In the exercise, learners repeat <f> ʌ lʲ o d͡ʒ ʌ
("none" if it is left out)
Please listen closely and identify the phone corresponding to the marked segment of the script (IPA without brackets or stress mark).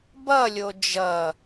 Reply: b